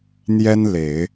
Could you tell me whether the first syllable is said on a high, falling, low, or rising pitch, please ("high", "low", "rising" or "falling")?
high